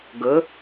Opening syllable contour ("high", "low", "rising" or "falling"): rising